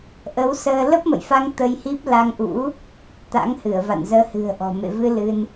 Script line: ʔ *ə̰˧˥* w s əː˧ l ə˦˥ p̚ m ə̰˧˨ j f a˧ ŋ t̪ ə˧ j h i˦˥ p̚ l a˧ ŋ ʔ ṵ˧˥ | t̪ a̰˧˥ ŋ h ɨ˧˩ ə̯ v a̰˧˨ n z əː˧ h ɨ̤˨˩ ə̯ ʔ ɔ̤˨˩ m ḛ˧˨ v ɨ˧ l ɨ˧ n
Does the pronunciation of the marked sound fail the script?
yes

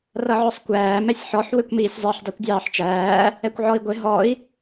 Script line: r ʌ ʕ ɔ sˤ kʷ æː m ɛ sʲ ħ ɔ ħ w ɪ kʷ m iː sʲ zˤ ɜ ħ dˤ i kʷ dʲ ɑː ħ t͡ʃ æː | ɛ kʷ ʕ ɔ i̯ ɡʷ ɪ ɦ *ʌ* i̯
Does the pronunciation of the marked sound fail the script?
yes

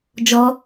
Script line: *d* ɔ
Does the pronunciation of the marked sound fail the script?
yes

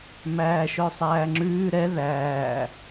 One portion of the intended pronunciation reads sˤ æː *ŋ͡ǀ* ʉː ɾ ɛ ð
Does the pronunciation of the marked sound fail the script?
yes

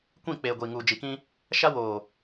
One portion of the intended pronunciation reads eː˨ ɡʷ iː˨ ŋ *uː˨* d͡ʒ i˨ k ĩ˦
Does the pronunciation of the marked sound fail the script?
no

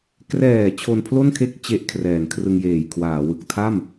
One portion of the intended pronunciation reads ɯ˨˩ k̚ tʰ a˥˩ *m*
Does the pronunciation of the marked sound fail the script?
no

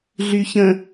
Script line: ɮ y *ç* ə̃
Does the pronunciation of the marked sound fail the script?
no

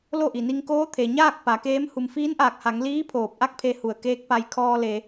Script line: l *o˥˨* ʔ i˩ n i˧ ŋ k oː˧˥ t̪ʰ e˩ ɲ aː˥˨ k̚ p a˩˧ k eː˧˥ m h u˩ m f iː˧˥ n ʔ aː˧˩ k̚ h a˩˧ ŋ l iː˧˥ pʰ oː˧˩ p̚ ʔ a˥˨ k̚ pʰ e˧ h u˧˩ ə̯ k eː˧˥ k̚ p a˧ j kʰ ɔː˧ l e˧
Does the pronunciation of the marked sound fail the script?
no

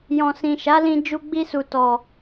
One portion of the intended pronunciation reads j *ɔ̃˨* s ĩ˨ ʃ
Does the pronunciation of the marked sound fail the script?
no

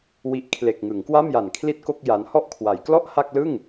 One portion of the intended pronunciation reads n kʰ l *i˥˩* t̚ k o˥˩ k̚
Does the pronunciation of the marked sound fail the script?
no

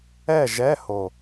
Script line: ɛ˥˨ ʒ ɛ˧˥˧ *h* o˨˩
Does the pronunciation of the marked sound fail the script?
no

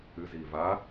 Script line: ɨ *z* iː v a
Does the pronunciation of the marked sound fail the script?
no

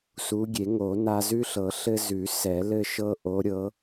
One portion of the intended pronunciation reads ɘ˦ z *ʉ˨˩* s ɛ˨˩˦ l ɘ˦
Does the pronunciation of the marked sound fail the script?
yes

